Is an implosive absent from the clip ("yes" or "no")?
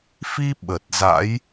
no